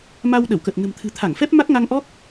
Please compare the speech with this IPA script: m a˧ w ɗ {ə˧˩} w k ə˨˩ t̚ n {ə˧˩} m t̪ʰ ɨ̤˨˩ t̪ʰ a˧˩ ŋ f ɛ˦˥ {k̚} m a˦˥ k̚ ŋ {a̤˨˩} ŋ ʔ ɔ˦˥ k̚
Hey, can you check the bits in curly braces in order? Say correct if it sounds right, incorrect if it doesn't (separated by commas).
correct, incorrect, incorrect, incorrect